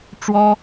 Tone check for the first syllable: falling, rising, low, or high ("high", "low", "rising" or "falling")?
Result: high